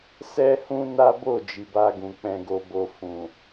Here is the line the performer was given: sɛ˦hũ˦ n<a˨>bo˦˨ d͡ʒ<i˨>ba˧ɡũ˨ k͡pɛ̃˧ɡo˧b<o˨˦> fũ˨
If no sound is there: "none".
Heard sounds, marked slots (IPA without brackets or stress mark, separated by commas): a˦, i˨, o˧